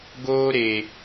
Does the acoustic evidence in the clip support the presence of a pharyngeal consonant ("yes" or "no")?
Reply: no